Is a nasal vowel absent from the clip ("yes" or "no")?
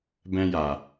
no